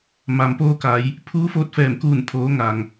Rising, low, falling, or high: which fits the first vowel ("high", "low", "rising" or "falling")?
low